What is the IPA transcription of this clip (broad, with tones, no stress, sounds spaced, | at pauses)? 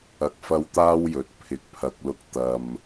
ɐ˨ k̚ f ɐ˧ w t̪ aː˥ w j ɵ˨˥ t̚ pʰ ɪ˨˥ k̚ pʰ ɐ˧ k̚ l ʊ˧ k̚ t̪ ɐ˨ m